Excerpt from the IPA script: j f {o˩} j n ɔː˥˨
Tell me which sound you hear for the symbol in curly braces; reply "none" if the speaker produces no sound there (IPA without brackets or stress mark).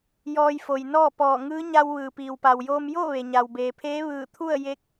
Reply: o˩